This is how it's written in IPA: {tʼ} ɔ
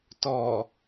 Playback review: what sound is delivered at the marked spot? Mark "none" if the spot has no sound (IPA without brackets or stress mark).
t